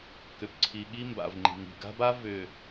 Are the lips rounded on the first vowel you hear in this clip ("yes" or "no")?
yes